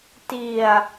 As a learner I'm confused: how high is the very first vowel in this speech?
high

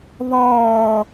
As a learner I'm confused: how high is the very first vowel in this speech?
mid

